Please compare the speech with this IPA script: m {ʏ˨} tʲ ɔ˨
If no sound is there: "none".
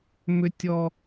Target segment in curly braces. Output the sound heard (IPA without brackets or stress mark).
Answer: ʏ˨